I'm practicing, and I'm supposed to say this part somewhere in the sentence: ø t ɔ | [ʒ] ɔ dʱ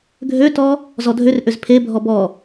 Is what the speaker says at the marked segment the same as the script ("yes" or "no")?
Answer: no